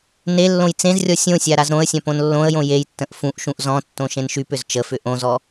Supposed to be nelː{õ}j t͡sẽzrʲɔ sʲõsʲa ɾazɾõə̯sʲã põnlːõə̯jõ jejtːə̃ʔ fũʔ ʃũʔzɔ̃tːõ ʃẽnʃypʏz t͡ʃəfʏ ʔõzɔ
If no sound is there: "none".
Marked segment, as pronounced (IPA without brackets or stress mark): õ